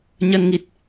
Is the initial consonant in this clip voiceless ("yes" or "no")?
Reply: no